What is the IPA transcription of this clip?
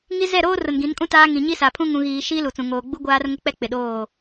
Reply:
ŋ i˦ z ɛ˦˨ ɾ oː˦ r ʊ˨ n ɡ ĩ˨˦ n kʼ ũ˦ t aː˦ ŋ ĩ˨ ɲ i˦ s a˨ pʰ ũ˦ ŋ ũ˨ ɣ iː˨ ʃ iː˦ l u˨ t͡s ũ˨ ŋ oː˨ ɡ͡b u˦ ɡʷ aː˦ r ŋ ʊ˦ k͡p ɛ˦ k͡p ɪ˨ ɗ oː˦˨

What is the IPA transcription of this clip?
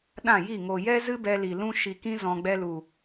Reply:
ɗ ã˦˨ j i˦˨ ŋ o˨ j ɛ˦ z ɨ˦ b ɛ˧ l i˨ l ũ˦ ʃ i˧ k ĩ˦ z ɔ̃˨ ɡ͡b ɛ˧ l u˨

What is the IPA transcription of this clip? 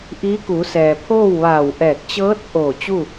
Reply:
ʔ iː˧˥ k u˩˧ s ɛː˩ pʰ oː˥˨ w ʋ aː˧˩ w ʔ ɛː˧˩ k̚ t͡ɕ ɤː˧˥ t̚ ʔ oː˧˩ t͡ɕ u˥˨

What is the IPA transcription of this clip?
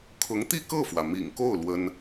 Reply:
kʰ ʊ˧˥ ŋ t̪ i˥˧ k ɤ˥˩ f w ä˩ m ḭ˨˩ ŋ k o˥˩ ʊ̯ l w ə˥ n

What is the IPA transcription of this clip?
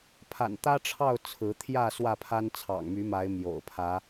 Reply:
pʰ a̰˨˩ n t̪ ä˦ ʈ͡ʂʰ ɑ˥˨ ʊ̯ t͡sʰ ɹ̩˨˦ t̪ʰ j ä˥˨ s w ä˥˨ pʰ a˦ n t͡sʰ ɑ̰˨˩ ŋ m y˨˦ m a˨˦ ɪ̯ m j o̰˨˩ ʊ̯ pʰ ä˨˦

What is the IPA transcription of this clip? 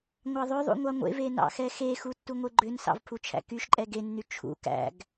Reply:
ŋʷ ɑ ðˤ ø ðˤ ṵ ŋʷ ɑ ŋʷ ḛ v e n ɑ̰ x ɛ x e x u tː u ŋʷ e ɡ͡ǃ ø n s ɑ̰ v pʰ u t͡ʃʰ æ̰ k y ʃ ǃʼ ɛ ɡ e nː y t͡ʃʰ ṵ k æ̰ ɡ

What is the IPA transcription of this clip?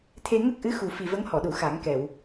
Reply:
t̪ʰ e˧ ŋ ə˦˥ k̚ ʔ ɨ˧˥ x u˨˩ f i˨˩ v ə˧˥ ŋ h ɔ˨˩˨ ɗ u˨˩˨ x a˨˩˦ ŋ k ɛ˨˩˨ w

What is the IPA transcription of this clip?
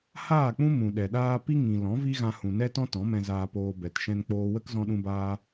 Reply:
h aː˦˨ k͡p ũ˦ m ũ˨ ɗ ɛ˨ ɗ aː˦ p i˦ ŋ ĩ˨ l ɔ̃˨˦ v i˦ ɣ ã˧ h ũ˨ n ɛ˦ t ɔ̃˦ t ɔ̃˨˦ m ɛ̃˧ z aː˧ p oː˧ b ɛ˨ t ʃ ɛ̃˧ n k͡p oː˧ w ə˦ k z ɔ̃˧ ɗ ũ˧ b aː˧

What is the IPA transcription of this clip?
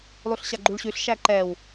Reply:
lˠ u ɬ ɕ a ɡ͡ǃ u ɭ ɕ ʉ ɬ ʃ æ ǃ ɛ w

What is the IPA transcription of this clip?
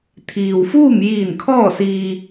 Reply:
t̪ʰ iː˩ w f uː˥˨ m j iː˧˩ n kʰ ɔː˥˨ s iː˧

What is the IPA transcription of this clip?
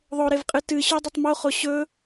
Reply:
ðˤ o ɾ e v qʼ ɨ t ɨ ɕ ʉ dˤ ɵ tˤ m o χ o ɕ ɵ

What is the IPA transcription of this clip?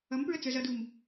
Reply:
ʌ m p ɹ ə t͡s ə˞ z ʌ d u m

